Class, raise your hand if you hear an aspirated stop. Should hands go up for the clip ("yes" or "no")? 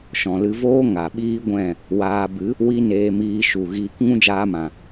no